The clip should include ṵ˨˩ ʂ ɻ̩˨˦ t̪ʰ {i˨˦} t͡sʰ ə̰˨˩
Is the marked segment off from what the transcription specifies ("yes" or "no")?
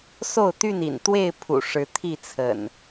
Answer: yes